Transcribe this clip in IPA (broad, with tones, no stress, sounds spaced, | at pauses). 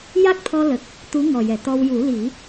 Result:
j a˦˥ k̚ t̪ʰ ɔ˧ l ə˨˩ k̚ | t̪ u˧˥ ŋ ɔ˨˩ j ɛ˨˩˨ t̪ ɔ˧ w j u˨˩˦ l i˨˩˦